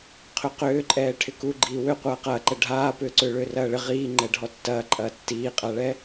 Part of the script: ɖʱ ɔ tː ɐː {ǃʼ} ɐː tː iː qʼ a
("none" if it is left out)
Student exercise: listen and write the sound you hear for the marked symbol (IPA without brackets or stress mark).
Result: ǃʼ